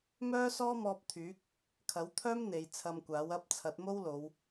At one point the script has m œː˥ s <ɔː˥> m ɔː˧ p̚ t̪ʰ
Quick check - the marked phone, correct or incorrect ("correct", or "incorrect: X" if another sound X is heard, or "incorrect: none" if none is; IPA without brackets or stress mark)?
correct